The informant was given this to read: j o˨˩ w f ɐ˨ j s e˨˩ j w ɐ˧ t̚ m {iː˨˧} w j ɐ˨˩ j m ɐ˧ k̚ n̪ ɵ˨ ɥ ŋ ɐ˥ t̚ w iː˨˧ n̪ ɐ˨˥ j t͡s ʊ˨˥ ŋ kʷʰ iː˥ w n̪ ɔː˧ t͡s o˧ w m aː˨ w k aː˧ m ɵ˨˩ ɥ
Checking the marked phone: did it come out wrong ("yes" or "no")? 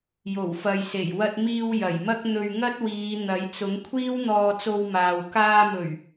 yes